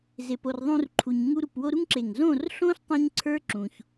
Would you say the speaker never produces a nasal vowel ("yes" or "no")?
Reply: no